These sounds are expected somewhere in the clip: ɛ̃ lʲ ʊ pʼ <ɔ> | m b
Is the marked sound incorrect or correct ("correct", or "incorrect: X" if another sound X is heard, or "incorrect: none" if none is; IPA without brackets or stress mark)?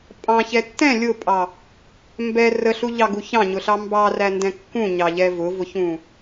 incorrect: ɑ